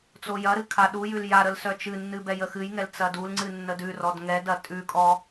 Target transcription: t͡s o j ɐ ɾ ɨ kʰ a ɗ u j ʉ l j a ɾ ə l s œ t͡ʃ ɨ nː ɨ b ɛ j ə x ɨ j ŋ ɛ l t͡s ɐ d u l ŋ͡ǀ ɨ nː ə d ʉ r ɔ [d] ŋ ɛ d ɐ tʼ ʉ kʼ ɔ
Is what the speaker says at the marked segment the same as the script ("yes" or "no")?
yes